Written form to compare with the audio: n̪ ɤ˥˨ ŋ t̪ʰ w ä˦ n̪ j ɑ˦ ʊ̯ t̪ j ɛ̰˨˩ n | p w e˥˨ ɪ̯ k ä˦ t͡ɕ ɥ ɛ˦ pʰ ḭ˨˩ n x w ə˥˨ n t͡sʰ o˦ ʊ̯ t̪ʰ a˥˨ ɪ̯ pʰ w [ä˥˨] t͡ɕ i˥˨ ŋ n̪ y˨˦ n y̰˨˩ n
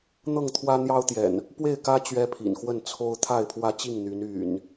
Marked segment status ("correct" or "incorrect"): incorrect